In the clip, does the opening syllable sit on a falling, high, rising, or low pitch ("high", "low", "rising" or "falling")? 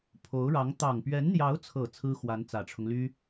rising